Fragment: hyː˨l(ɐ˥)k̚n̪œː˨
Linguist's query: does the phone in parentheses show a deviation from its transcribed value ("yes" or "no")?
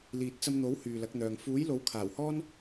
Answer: yes